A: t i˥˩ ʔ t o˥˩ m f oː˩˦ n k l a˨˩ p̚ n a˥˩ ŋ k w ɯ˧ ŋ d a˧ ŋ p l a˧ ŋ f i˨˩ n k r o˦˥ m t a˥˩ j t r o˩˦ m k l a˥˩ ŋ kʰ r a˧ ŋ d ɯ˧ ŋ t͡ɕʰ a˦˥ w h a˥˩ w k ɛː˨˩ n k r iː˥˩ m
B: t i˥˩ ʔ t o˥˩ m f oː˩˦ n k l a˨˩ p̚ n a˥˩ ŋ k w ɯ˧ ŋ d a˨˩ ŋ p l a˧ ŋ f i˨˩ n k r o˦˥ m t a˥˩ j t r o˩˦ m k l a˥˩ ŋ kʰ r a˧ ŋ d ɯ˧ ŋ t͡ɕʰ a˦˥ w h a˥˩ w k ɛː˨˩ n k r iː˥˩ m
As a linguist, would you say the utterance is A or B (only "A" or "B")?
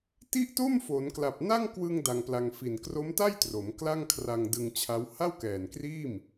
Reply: A